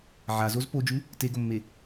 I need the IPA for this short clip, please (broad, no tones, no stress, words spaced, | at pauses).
ʕazoz pod͡ʒʉ | teɡomːe